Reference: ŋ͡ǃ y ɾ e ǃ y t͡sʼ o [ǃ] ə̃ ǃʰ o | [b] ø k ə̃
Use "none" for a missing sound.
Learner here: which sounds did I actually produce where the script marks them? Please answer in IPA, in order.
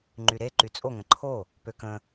ŋ, p

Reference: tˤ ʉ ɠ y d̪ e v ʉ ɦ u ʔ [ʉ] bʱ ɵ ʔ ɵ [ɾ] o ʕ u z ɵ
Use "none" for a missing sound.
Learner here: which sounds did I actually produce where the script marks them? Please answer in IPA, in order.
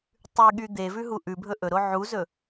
ʉ, ɾ

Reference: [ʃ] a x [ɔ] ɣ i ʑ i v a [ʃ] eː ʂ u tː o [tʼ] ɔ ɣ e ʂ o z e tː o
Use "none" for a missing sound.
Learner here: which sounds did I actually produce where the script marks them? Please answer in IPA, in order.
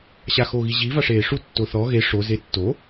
ɕ, o, ʂ, θ

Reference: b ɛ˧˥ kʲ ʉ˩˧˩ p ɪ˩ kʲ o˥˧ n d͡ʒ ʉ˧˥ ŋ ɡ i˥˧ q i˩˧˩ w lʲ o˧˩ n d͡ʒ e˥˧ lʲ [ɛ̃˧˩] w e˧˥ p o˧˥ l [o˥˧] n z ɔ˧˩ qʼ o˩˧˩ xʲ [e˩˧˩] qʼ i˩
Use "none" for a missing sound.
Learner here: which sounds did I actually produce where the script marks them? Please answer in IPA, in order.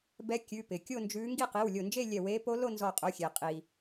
ɛ˧˩, o˥˧, e˩

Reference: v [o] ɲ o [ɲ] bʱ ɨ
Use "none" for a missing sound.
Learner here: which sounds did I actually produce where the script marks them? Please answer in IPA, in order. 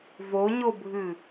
o, none

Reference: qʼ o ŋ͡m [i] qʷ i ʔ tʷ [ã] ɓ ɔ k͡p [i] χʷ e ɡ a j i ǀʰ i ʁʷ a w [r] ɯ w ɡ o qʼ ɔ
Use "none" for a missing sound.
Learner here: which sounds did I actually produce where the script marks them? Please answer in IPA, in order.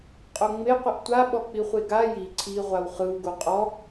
e, a, i, χ

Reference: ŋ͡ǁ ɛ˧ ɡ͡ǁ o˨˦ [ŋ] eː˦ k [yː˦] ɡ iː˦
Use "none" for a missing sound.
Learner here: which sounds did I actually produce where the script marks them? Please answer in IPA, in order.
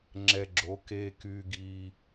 k, yː˦

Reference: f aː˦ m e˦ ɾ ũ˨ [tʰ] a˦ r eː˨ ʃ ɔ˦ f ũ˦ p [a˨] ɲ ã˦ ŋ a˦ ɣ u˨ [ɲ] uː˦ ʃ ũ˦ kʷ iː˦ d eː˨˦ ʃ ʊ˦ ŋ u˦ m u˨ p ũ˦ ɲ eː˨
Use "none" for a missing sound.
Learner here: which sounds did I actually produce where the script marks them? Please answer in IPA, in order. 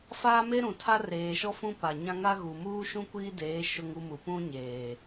tʰ, a˨, m

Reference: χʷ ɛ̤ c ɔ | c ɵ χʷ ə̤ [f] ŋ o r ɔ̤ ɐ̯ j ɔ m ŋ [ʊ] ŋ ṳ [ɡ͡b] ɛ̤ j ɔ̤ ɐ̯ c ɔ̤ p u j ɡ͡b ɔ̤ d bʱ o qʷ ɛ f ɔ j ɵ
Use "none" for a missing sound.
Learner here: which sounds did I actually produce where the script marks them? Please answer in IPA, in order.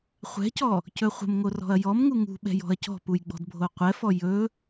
m, u, ɓ

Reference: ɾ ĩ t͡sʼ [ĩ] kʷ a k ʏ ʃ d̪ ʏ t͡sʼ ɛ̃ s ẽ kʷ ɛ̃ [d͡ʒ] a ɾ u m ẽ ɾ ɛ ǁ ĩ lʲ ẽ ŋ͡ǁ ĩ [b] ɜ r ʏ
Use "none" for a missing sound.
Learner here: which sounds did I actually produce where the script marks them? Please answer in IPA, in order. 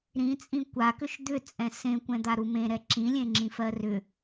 ĩ, d̪, f

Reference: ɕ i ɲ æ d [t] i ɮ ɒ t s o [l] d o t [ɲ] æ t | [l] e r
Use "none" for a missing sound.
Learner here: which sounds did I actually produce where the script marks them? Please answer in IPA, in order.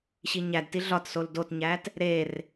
t, l, ɲ, ɾ

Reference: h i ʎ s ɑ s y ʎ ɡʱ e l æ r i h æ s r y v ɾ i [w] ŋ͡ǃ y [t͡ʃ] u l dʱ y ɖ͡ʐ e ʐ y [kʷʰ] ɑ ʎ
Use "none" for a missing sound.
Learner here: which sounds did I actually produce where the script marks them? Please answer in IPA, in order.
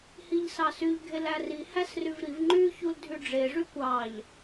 v, ç, kʷ

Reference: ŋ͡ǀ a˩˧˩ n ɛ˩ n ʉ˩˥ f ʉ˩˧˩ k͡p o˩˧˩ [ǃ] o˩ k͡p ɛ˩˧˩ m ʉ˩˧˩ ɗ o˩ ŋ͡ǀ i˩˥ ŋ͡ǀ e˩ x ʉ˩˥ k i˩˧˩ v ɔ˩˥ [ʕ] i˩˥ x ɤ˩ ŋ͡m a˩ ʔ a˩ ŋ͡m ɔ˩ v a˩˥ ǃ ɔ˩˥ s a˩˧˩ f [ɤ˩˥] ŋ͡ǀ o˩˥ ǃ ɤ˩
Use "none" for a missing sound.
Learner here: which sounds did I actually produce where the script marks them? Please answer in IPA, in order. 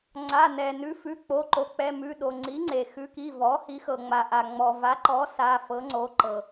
ǃ, h, ɤ˩˥

